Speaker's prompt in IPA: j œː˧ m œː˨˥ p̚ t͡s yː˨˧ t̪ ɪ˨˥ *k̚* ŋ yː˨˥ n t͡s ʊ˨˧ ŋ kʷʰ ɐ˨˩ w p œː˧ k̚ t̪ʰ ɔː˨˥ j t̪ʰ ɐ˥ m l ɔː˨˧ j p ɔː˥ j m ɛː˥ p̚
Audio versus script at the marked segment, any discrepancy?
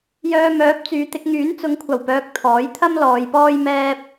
no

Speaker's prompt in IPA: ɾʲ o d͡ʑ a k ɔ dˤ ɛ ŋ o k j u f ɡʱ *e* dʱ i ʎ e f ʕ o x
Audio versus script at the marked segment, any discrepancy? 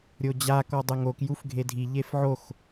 no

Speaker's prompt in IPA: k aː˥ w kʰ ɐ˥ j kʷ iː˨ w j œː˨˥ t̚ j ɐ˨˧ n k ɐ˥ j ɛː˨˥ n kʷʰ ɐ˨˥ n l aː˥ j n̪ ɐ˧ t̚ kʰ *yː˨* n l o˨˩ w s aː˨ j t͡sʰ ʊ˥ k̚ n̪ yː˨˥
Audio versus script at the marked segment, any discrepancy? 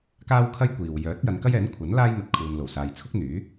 yes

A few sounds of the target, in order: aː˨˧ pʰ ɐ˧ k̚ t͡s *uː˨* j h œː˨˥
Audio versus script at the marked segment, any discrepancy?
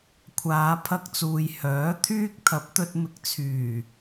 no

